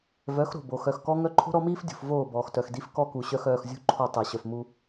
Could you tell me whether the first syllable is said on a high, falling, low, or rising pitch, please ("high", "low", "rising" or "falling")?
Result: rising